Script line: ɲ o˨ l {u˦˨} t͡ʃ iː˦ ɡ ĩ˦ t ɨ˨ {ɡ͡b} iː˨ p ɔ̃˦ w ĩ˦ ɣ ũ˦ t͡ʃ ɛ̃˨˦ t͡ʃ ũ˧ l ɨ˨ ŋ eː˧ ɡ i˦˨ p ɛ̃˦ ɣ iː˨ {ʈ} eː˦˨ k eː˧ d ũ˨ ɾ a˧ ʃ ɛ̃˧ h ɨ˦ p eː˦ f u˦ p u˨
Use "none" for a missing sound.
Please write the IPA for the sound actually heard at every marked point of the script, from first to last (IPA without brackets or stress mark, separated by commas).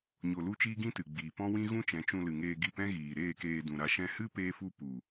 u˧, ɡ͡b, ɾ